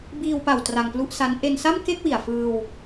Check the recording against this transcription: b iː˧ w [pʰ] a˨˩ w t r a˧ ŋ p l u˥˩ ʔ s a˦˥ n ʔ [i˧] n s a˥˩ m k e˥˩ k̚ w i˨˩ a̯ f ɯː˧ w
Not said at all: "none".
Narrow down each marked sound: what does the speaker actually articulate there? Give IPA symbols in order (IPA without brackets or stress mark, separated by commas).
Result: p, e˧